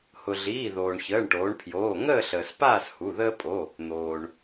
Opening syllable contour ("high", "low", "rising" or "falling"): low